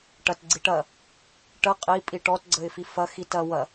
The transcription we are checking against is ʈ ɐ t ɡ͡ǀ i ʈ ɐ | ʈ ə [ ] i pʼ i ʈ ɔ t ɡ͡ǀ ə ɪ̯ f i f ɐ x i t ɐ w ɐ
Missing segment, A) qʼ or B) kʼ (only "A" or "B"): A